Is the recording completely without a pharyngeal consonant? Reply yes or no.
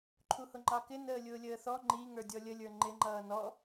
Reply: yes